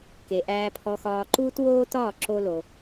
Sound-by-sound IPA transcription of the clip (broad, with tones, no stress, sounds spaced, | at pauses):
k e˩ ʔ æː˧ pʰ ɔ˧ x ɒː˧ ǃ uː˥ t w oː˥ t ɒː˥˩ ǁ o˧ l o˩